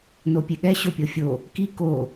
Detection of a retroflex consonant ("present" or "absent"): absent